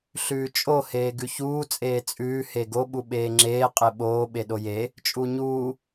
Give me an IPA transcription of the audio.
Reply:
ɬ ʉː t͡ʃʼ o h eː ɡ ʉ ç uː t͡sʼ eː t͡sʼ ʉː h e ɡ o ɓ u ɓ eː ŋ͡ǁ eː qʼ e ɓ oː ɓ e ɗ o j e | t͡ʃʼ u ɲ uː

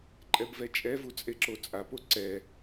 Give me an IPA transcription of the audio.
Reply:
ǃʼ ɛ b v ɛ t͡ʃʼ ɛ v u t͡sʼ e ǁ o t͡sʼ a p o ǀ ɛ

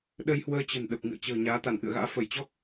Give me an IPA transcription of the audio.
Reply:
ɗ ə˧ j h w əː˧ t͡ɕ ə̤˨˩ n ɗ ə˨˩ p̚ ŋ ɨ̰˧˨ ə̯ t͡ɕ ə̤ː˨˩ ɲ aː˨˦ t̪ a˧˩ n ʔ ɨ̰˧˨ ə̯ ɣ a̰ː˧˥ f ə˧˩ j t͡ɕ ɔ˦˥ k̚

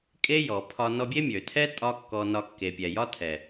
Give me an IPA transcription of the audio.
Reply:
kʼ e˦ j ɔ˨ pʰ ɒ˧ n ɔ˧ bʲ e˦ mʲ ø˨ tʰ ɛ˦ tʼ ɒ˦ kː ɔ˧ n ɒ˧ kː e˨ pʲ ɛ˨ j ɒ˦ tʰ ɛ˨

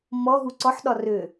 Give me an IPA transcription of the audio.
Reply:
m ɔ ɦ u ǀ ɔ ħ ɗ ɒ r ø

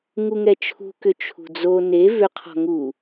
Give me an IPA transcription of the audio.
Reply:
ŋ u ŋ ɛ t͡ʃʰ ṳ k ʏ t͡ʃʰ ṳ d͡z o n e v ʏ qʰ ɔ̤ ŋ u

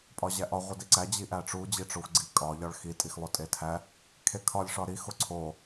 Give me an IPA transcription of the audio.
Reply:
pʼ ɒ ʑ æ ʔ ɒ ʁʷ i d i ǀ æ d͡ʑ i ʔ æ ʈ͡ʂ u d͡ʑ i ʈ͡ʂ o xʷ ɡ͡ǀ i kʼ ɒ ʎ ɒ ɭ x i tʼ i x lˠ o tʼ e tʰ æ | kʰ e kʰ ɒ lʲ ʂ ɒ ɾ i x o ǀʰ o

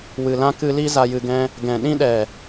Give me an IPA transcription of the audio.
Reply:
w ɨ˨ l ã˦ k ɨ˧ l i˦ z a˧ j ɨ˧ ɡ ɛ̃˦ | ɡ ɛ̃˨ ɗ ĩ˦ ɗ ɛ˨

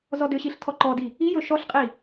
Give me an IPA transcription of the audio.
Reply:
z ɔ d ʏ ɕ i ɬ tʰ ɔ ǃ ɔ d i | i j ɵ ʃ ɔ ɬ qʼ i

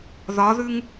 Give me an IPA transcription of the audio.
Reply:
ð ɒ ð ʉ ŋ

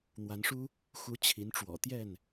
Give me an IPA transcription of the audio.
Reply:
n̪ w a˨˦ n ʂ u˦ | x u˨˦ t͡ɕʰ i˨˦ n ʈ͡ʂ w ɔ̰˨˩ t̪ j ɛ˥˨ n

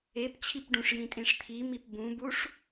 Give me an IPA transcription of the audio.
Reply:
e p t͡ɕʰ i p ɖ ũ ʂ j ĩ tʼ ĩ ʂ t̪ʰ i m i p b ũ b u ʂ

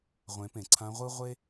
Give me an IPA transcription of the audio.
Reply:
ʁʷ ẽ˩˧ p ẽ˩ ǀʰ ã˧˥ ʁʷ ɯ˥ ʁʷ e˥

